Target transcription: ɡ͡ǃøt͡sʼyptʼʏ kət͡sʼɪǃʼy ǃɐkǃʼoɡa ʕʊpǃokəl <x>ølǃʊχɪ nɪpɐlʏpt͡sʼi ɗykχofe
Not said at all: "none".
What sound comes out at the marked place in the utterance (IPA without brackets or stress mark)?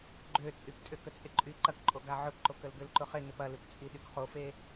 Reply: ɡ